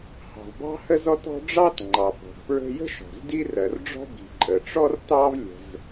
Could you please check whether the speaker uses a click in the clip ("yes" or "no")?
yes